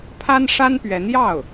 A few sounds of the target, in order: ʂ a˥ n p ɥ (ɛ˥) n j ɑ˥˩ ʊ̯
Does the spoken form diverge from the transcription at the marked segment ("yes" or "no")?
yes